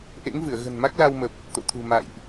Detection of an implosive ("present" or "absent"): absent